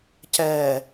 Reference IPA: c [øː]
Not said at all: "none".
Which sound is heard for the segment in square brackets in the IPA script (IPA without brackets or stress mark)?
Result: ɛː